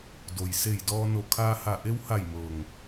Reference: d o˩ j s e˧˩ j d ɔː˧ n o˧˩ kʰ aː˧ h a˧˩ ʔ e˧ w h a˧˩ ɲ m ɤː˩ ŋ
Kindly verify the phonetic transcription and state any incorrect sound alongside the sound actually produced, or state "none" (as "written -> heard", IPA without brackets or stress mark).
ɲ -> j